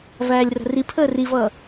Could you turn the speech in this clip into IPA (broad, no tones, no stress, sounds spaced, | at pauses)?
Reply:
v æː lʲ r ə̤ r i pʰ əː r i v ʌː